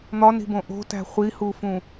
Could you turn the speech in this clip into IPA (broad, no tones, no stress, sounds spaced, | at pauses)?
n̪ ɒ n i̤ b õ ʔ o̤ t æ̤ χʷ i h u f ũ